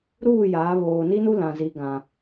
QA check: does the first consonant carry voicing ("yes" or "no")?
yes